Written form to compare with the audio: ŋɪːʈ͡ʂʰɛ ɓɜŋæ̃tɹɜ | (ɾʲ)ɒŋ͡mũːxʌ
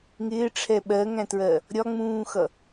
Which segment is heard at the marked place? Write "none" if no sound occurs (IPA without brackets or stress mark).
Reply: ɾʲ